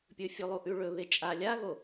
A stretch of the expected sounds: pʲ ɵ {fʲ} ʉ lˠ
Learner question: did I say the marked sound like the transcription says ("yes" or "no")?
yes